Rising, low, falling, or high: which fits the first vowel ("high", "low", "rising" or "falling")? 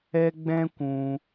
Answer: high